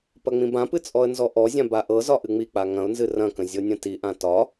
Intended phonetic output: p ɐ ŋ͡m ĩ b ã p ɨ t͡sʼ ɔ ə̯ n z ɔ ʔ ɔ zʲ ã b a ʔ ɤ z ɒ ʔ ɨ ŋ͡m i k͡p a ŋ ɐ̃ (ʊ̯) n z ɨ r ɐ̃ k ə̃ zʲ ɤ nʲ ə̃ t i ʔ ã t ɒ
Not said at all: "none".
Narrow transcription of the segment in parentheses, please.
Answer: ʊ̯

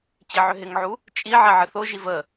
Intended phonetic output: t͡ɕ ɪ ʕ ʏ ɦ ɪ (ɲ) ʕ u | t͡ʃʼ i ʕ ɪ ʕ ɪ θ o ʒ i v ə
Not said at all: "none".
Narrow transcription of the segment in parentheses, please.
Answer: ŋ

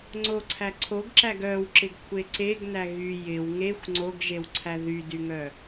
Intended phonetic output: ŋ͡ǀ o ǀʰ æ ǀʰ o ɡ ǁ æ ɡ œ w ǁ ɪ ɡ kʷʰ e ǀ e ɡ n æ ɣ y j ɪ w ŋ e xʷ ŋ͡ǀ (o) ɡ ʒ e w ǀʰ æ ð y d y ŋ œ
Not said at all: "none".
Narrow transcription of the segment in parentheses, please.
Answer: o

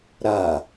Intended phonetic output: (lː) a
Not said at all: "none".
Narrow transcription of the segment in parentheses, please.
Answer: ɾ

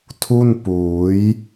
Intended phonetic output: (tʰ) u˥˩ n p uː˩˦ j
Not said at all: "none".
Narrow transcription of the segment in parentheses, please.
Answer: tʰ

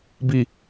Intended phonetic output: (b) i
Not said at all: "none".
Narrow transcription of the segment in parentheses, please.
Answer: b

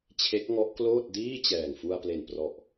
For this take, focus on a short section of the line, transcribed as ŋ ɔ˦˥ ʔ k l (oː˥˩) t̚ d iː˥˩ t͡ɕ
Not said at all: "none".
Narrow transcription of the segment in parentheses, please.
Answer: oː˥˩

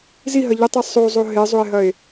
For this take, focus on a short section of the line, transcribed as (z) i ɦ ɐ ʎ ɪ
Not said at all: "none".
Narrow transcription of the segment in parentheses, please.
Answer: z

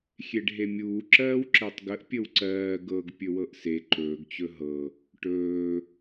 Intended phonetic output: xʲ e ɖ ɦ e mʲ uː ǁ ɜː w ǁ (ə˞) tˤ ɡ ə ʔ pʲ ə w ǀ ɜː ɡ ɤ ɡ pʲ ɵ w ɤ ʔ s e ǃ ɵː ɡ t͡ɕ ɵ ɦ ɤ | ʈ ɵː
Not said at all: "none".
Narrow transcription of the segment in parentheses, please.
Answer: ɜ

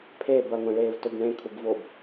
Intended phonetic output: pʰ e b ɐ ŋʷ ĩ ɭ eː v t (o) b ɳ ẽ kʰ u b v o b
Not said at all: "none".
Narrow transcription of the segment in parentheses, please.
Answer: ɵ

